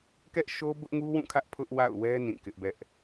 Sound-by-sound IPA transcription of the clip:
kɛ˦ʔʃo˦ bʊ˦ʔŋu˦wũ˦˨kʰä˦ʔ pʰʊ˦ʔwa̰˦˨ʊ̯wɛ˦ nĩ˦˨kɪ˦ʔbɛ˦ʔ

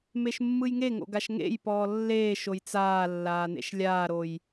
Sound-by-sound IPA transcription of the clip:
meʃmːɯjŋeŋo̰ ɡaʃŋḛjpɔː lːeːʃoj t͡saːlːaː nḛʃlʲaːɾoj

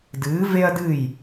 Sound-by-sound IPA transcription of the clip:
dɨː˩˥ ve˥ɐ̯dɨ˥˩j

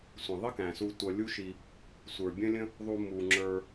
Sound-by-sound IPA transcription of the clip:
sʷə̃˩ðˤɪ˥kæ̃˩su˨ tʷʌ˨lʲu˦ʃi˨ | sʷə˞˩bʲə̃˥lʲə̃˥ | ðˤu˨mu˩ ŋ͡ǁə˞˨

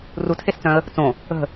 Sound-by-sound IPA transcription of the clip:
rutʰest͡sœ̃ə̯ | t͡sõ | ə̤

